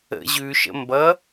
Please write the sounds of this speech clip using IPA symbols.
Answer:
ə̰ ʑ ʉ ʃ ə̰ m b ʌ

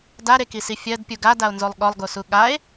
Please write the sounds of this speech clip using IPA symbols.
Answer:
d a ɾ e k i s i fʲ ɜ d pʲ u ɡ a d a o̯ n z o lˠ ɠ ɔ lˠ ɡ o s u ɠ a e̯

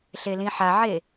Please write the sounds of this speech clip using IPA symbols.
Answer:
ɬ e l ĩ ħ a ʕ e

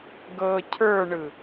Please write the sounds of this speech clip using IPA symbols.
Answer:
ɡ ɤ cʰ ə˞ ɳ ɯ

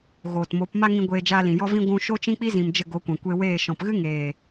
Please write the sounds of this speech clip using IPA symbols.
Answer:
ɣ oː˨ t m o˨˦ p m a˦ ŋ ĩ˧ ɡʷ eː˧ d͡ʒ aː˧ l ĩ˨ j ɔ˦ v ĩ˦ ɡʷ ũ˧ ʃ o˦ t͡ʃ ĩ˦ k͡p i˦ z ĩ˨ m d͡ʒ ə˦˨ ɡ o˨˦ kʷ ɛ̃˨ kʷ e˧ w eː˦˨ ʃ ɔ̃˨ p ɣ ɨ˦ ŋ eː˨

